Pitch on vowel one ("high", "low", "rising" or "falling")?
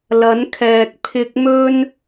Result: rising